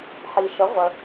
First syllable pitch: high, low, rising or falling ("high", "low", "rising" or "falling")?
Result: low